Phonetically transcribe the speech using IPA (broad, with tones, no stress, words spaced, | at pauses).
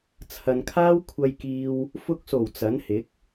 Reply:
t͡sʰɐ˨nkʰaː˥w kʷʰɐ˧jkiː˧w | fʊ˧k̚so˨˩w t͡sɐ˨˥nhɪ˨˥k̚